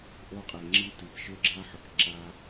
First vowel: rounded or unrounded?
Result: rounded